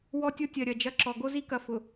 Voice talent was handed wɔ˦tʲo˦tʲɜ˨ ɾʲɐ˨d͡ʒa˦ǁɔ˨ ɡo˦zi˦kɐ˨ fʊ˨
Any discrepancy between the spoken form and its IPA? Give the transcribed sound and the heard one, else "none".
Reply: a˦ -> ɐ˦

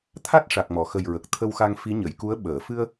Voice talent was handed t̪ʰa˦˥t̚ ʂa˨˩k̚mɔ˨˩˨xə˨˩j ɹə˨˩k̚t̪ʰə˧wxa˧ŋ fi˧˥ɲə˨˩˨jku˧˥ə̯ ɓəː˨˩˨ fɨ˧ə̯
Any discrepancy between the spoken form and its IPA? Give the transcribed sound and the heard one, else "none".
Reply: none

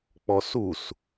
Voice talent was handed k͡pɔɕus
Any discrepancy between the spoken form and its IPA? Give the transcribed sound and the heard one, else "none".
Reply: ɕ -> s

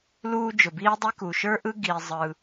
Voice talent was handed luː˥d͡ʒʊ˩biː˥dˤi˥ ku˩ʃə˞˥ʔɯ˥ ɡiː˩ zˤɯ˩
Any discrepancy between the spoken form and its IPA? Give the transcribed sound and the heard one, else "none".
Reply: none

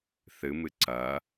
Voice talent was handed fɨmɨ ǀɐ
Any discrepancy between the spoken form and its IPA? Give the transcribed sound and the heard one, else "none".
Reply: f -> θ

